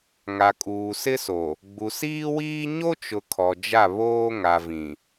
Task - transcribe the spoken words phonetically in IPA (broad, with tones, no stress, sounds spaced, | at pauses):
ŋ a˨ kʼ uː˨ s ɪ˦ s o˨ | ɡ͡b u˨ s iː˦ w iː˦ ɲ o˦ t͡ʃ ʊ˨ kʰ ɔ˨ d͡ʒ a˦˨ β oː˦ ŋ a˨ v ĩ˨